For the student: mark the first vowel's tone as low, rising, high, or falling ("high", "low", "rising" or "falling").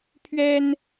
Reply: high